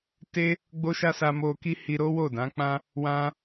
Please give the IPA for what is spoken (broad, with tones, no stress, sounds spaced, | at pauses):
t e˦ | ɡ͡b o˦ ʃ a˦ s a˧ m o˧ k i˦ h i˧ ɾ o˦ w o˦˨ d ã˨˦ k͡p ã˦ | w ã˦